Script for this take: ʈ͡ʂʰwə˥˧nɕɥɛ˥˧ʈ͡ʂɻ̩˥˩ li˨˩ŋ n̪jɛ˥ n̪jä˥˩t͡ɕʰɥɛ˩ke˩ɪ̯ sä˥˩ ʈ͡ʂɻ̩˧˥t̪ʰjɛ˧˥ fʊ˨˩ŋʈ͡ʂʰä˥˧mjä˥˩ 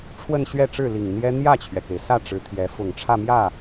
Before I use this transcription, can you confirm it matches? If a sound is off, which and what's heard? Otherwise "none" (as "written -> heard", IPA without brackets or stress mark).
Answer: none